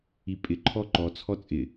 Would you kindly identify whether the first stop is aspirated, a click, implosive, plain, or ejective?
ejective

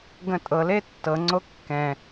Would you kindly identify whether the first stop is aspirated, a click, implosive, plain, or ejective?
plain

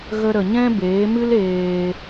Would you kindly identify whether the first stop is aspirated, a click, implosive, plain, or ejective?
plain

